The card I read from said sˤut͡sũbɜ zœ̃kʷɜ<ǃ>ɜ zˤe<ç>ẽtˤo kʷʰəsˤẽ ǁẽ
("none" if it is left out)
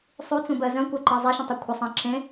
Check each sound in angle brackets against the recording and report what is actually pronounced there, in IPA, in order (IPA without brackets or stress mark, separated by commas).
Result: ǃ, ʃ